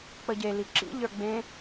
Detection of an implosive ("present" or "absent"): absent